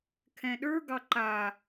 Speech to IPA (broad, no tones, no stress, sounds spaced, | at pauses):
kʰ ɛ̃ ɗ ə˞ ɡ ɑ ǃ a